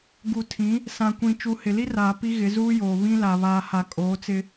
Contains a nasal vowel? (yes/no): yes